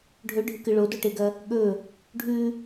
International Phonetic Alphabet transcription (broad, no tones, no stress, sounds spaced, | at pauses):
ɖʱ ɵ ɖʱ ɨ k ɨ ɭ o d o ʈ e ɡ ɐ | ɠ ɵ | ɖʱ ʉ